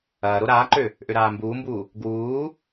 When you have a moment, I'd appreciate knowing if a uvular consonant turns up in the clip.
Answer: no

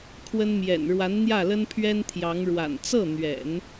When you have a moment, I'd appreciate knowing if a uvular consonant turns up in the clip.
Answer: no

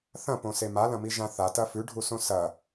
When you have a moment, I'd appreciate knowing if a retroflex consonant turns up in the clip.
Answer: yes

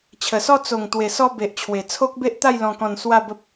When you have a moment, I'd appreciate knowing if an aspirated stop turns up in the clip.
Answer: yes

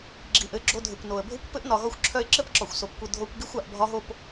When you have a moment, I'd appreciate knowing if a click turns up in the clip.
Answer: yes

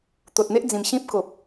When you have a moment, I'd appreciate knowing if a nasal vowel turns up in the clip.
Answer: yes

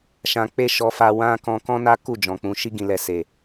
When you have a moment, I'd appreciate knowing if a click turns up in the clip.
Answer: no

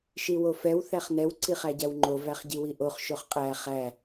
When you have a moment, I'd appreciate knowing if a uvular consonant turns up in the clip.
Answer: yes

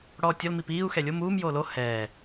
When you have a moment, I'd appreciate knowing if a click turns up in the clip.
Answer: no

